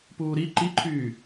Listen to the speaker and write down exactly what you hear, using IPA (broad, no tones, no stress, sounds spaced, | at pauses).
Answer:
p uː ɾ i ǃ i ǃʰ yː